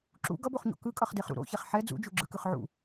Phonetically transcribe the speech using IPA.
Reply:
ǁ ṵ ɡ ʌ b o χ ɲ o̰ k ɯ kʼ ʌ χ d e χ ɾ ṵ ɾ o̰ ç ɛ χ ħ ɛ d͡z ṵ d͡ʒ u ɡ͡ǁ ɯ k ɯ χ ʕ ṵ

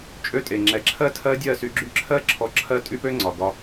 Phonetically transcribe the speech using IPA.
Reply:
t͡ʃʼ ø˧ tʼ e˨ ŋ͡ǁ ɛ˨ ǁʰ ɜ˦ tʰ ɜ˦ dʲ ɜ˦˨ s y˧ ɡ͡ǁ y˦ ǁʰ ɜ˦ ǁʰ ɔ˧ ǁʰ ɜ˦ tʼ y˦ p ø˦ ŋ͡ǀ ɒ˨ ɡ ɒ˧

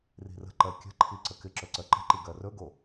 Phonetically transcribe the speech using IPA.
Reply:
r i̤ r ə̤ ǃ ɜ kʲ ə̤ ǃʰ i ǀ ə k ɪ ǁ ɵ ǀ ɜ ǃ ə̤ ǃ i ɡ ɜ r ɵ ɡ o

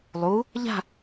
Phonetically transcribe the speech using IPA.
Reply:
lˠ u | ʎ a̤

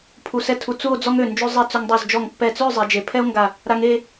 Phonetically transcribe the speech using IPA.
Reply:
pʰ u˧˩ s ɛ˥˧ tʰ u˧ t͡s u˥˧ o̯ d͡z ɔ˥ ŋ ø˧˩ n d͡ʒ ø˥ zˤ e˥˧ t͡s ø˧ ŋ dˤ u˧˩ z d͡ʒ ɔ˧˩ ŋ pː ɛ˧˩ t͡s ø˥˧ zˤ e˩˧ d͡ʒ e˩˧ pʰ ɛ˥ o̯ ŋ ɡ a˧˩ | ɾ a˧ ŋ e˥˧

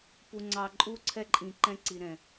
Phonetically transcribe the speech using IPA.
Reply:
p u˨ ŋ͡ǀ ɑ˨ ǃʼ u˦ ǀʰ ɛ˦ ǃʼ ĩ˨ ǃ ɛ̃˦ ǀ i˨ ɾ ɛ̃˨

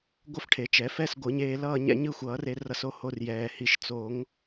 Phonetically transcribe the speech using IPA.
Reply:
ɡʷ ʌ˥˧ f ʈʰ e˨˩˦ t͡ʃ ɛ˨˩˦ f ɛ˥˧ s ɡʷ ɯ˨˩˦ ɲ eː˧ l ʌː˥˧ ɲ ɛ̰˥˧ ɲ ɯ˥˧ xʷ ʌː˨˩˦ r e˧ r ʌ˧ s o˥˧ h o˧ r j ɛː˩ h i˨˩˦ ʃ t͡s o˨˩˦ ŋ

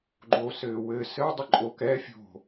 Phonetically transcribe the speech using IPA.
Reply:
ɡ͡ǃ o s ɘː w ɘ s ɘ dˤ ɘ ǃʼ o k ɛ fʲ o̤

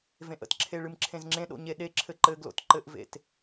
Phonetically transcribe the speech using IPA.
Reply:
v ẽ ʔ ə̰ t ǁʰ e ɭ ɨ m ǁʰ ẽ z ŋ͡ǁ ẽ ɗ o̰ ɲ e ɗ e ǁʰ ɘ ǃ ɘ ɡ l o̰ t ǃ ɘ ʔ v ḛ t

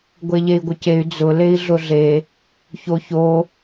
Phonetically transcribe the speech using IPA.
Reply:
ɡʷ e ʎ e i̯ ɡʷ ɪ c e y̯ d͡z ʊ l e i̯ ɮ ʊ ɮ e | ç o ç o

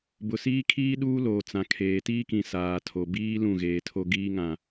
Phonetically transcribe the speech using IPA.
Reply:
b ʊ˨ s iː˦ kʰ iː˦ ɗ uː˦ l oː˨ t͡s ã˨ kʰ eː˨ t iː˦ k ĩ˨ s aː˨ tʰ o˨ b iː˦ l ũ˦˨ ɣ eː˨ tʰ o˦ ɡ iː˦ ŋ ã˨

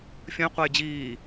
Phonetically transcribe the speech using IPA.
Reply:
fʲ ə̃ j qʷ a j d͡ʑ iː

